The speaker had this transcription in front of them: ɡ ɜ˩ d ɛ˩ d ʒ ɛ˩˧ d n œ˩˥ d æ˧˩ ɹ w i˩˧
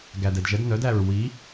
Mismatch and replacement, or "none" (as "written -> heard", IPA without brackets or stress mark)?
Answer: ɜ˩ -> æ˩